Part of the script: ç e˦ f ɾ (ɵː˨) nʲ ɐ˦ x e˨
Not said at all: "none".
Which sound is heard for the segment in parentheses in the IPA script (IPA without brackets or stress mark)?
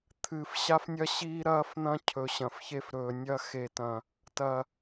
ɵː˨